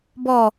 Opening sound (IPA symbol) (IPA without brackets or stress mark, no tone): b